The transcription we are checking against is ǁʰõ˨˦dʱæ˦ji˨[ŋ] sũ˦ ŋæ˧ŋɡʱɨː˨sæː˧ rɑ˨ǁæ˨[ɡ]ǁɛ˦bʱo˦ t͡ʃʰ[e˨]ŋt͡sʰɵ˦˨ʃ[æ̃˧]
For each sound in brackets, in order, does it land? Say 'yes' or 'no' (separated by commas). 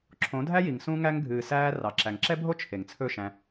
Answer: yes, no, yes, yes